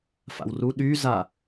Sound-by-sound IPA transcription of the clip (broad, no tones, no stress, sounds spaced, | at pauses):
f a̰ w r u ɗ y z a